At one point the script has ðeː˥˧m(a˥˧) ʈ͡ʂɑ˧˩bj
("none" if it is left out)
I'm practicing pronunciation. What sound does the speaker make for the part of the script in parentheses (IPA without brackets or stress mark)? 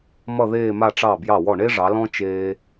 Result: a˥˧